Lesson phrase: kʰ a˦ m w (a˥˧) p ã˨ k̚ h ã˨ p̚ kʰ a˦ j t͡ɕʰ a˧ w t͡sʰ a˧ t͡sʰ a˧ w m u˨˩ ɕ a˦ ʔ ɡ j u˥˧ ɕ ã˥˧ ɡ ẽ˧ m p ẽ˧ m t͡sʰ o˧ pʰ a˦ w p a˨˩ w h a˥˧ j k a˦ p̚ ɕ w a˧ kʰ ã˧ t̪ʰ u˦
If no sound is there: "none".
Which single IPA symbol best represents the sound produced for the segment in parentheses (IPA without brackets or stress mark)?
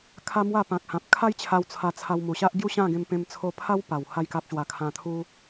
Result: a˥˧